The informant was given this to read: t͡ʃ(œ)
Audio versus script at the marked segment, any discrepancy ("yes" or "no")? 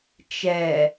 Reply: yes